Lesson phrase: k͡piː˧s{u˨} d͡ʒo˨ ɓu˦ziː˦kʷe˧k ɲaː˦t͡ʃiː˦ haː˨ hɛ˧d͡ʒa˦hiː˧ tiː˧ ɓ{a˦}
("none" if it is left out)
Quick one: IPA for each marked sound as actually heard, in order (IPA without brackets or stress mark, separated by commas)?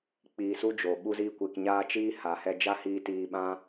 u˦, ã˦